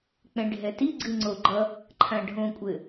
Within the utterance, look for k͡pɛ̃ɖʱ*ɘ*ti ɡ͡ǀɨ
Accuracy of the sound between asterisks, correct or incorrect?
incorrect